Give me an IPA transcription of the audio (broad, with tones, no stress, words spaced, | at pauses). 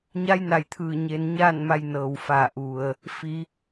ɲa˧˥jna˩jt̪ʰɯː˧˩ ɲe˧n ɲaː˥˨nma˧jnɤː˩wfa˧˩ ʔu˩ə̯ | fi˩˧